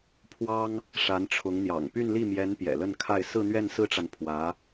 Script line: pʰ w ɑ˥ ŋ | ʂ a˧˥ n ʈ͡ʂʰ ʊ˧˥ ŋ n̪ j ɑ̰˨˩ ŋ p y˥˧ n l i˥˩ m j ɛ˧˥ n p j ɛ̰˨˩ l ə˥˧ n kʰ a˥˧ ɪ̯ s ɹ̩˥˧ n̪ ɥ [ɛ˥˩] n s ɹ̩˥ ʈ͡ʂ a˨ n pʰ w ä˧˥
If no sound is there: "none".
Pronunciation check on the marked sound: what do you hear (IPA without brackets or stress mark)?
ɛ˥˩